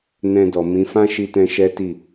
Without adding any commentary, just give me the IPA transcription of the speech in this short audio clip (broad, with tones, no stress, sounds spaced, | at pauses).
n ɛ̃˧ d ɔ˨ m ĩ˨˦ f ã˦ ʃ i˧ t ɛ̃˧ ʃ ɛ˦ t i˦˨